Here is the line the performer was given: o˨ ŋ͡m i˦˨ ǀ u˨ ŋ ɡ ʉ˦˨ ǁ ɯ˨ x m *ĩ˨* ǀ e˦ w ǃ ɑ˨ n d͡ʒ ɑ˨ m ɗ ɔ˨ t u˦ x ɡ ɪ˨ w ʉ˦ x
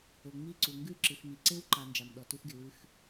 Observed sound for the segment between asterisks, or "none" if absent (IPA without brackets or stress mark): i˨